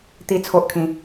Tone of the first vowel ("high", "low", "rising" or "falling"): high